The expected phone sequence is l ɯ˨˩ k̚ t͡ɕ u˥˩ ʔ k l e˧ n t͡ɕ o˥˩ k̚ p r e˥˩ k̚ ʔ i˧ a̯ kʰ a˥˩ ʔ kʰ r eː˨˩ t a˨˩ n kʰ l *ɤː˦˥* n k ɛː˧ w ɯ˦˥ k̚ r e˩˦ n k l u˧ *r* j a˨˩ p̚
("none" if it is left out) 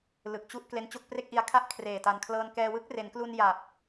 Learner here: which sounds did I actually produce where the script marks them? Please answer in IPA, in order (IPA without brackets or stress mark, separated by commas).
ɤː˧, n